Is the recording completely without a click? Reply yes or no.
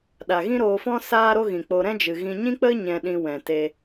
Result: yes